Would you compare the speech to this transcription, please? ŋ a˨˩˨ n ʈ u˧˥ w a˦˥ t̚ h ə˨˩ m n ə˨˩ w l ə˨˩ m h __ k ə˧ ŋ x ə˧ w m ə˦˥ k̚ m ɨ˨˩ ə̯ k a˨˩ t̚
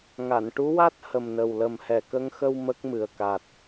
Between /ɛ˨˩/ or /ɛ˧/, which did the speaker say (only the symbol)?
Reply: ɛ˨˩